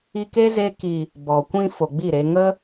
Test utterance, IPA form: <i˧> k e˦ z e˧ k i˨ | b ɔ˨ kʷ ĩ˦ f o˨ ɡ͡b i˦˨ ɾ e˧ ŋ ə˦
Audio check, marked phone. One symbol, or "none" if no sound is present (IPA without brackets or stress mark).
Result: i˧